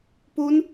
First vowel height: high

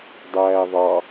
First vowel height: low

